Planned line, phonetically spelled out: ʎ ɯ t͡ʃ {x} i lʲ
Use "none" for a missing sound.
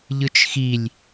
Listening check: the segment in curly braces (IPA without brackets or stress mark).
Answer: x